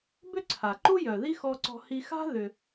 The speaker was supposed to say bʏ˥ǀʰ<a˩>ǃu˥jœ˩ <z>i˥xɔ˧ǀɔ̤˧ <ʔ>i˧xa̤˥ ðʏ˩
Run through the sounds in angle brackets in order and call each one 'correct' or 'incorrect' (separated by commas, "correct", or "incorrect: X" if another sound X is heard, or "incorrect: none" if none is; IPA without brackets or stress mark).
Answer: correct, incorrect: ð, incorrect: h